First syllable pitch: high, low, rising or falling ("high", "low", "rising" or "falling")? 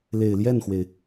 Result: low